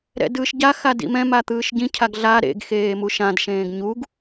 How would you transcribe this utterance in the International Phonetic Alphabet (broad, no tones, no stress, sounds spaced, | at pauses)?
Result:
ɾ ɛ̰ d ɯː ʃ ɟ a x a d ḭ m ɛ̃ m a t̪ ɯː ʃ ɟ ĩ cʰ a ɡ ɮ a ɾ ḛ ɡ x eː m u ʃ ã d ʃ ẽː ɡ ɲ u ɡ